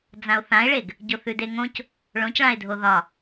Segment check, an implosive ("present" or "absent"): absent